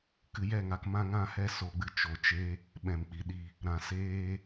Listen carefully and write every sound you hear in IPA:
k ɨ˧ j ɛ˦˨ ŋ a˧ k m ã˦ ŋ ã˦ h ɛ˦ s o˦ ɡ͡b ɨ˦ t͡ʃ o˧ t͡ʃ e˦ | ɓ ɛ̃˨ m k͡p i˨ ɗ i˧ | ɾ ã˨ s eː˧

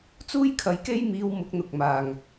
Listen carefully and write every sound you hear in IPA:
t͡s uː˥ j kʰ ɐ˨˧ j k e˥ j m iː˧ w m ʊ˨˥ k̚ n̪ ʊ˨ k̚ m aː˨ ŋ

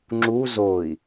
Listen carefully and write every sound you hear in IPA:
ŋ͡ǁ u z o i̯

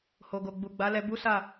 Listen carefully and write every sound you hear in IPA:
h o˨ ɡ o˨ ɡ͡b u˨ ɡ͡b a˨˦ l ɛ˧ b u˦ s a˦˨

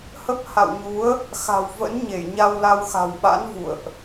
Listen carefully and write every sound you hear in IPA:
h ə˦˥ p̚ h a̰˧˨ w ɲ u˨˦ ə̯ | x a̤˨˩ w v ə̰˧˥ n ɲ e˧˩ j ɲ a˧ w l a˧ w x a̤˨˩ w ɓ a̰˧˥ n v ṵ˧˨ ə̯ ʔ

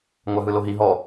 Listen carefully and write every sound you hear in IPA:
ŋʷ a ɦ ɯ l o ɦ i ɦ ɔ

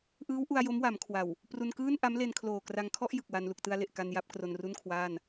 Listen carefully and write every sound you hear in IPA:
ʔ ɯː˦˥ w ʔ u˧ a̯ j o˦˥ m w a˩˦ m kʰ w a˨˩ w | p r u˧ n k ɯː˥˩ n ʔ a˦˥ m l e˧ n kʰ l oː˨˩ k r a˧ ŋ kʰ ɔ˥˩ ʔ j ɯ˨˩ k̚ w a˧ n l u˨˩ k̚ t ɯ˧ a̯ l e˨˩ ʔ k a˧ n j a˦˥ p̚ k r o˧ n r u˥˩ n kʰ w aː˥˩ n

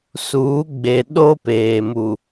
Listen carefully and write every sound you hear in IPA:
s uː˨˦ ɡ͡b e˨ ɗ o˦ p eː˨ m u˨

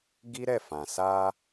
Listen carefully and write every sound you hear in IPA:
ɡ i˦ ɾ ɛ˦˨ f ã˨ s a˧

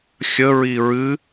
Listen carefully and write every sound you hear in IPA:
xʲ ə ɹ i ɹ ɨ

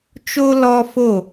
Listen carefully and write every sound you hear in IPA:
t͡ʃ o˥ l ɔ˥ f o˥˩

